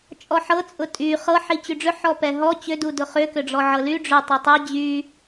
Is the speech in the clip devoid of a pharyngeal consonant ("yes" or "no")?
no